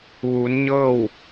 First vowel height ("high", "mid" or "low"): high